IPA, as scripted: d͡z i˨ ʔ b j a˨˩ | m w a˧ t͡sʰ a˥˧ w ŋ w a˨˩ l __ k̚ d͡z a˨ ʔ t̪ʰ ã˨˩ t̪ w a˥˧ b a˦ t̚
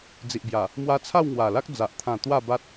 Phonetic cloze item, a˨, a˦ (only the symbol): a˦